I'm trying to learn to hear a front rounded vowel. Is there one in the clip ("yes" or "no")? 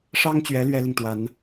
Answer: no